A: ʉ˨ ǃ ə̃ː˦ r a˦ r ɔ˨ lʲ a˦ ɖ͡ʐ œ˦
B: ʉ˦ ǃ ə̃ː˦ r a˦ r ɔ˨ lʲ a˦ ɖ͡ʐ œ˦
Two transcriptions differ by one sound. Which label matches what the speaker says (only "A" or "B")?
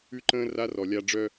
B